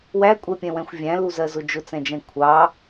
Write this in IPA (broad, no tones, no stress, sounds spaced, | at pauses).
w æ kʷʼ ɛ pʲ ɛ̃ w ɛ̃ xʷ vʲ æ̃ l u z ɜ z ʊ d͡ʒ ʊ t͡s ɛ̃ d͡ʒ ɛ̃ kʷʰ ɑ